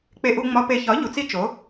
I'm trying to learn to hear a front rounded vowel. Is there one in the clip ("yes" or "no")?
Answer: no